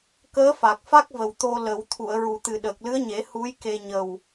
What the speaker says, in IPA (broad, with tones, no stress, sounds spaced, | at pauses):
k əː˧˥ f a˨˩ k̚ f a˦˥ k̚ v ə˨˩ w t̪ o˧ l ə˨˩˦ w t̪ʰ u˨˩˨ ə̯ ɹ u˨˩˨ t̪ ɨ˨˩ ɗ əː˨˩ k̚ l ɨ˧˥ ə̯ ɲ e˨˩˦ h u˧˥ j k e˧ ɲ ə˨˩ w